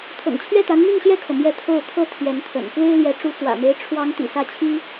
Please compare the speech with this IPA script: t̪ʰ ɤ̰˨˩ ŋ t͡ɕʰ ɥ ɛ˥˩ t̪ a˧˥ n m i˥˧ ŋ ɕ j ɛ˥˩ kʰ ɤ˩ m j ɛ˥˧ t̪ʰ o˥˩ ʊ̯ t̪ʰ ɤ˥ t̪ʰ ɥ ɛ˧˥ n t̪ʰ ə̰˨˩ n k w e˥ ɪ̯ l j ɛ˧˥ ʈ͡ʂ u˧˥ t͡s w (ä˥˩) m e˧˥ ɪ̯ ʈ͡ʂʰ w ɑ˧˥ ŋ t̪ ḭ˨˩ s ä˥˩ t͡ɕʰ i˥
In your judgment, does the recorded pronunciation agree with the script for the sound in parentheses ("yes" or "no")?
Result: no